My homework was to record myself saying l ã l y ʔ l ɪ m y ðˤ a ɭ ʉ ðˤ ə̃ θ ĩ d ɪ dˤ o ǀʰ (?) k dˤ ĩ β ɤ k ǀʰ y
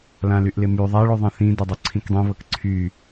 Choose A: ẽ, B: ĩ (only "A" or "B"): B